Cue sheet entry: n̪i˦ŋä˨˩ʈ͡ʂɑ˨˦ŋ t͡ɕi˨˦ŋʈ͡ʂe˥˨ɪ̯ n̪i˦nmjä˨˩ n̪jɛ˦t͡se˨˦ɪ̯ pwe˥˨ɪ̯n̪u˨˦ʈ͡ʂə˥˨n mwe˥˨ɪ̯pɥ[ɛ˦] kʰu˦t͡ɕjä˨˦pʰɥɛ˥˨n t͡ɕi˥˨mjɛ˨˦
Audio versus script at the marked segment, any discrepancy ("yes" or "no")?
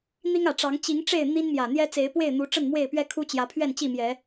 no